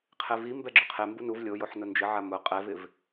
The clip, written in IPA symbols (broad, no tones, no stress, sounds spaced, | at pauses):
qʰ e v i m b ɛ ɡ͡ǁ ʊ qʰ e m b u n u v lʲ o j o ħ n ʊ n d͡ʒ ɪ ʕ a m ʊ qʼ ɛ v ɪ v